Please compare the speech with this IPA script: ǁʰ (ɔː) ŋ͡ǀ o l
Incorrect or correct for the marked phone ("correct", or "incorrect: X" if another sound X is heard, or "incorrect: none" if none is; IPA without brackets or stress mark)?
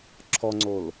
incorrect: ɔ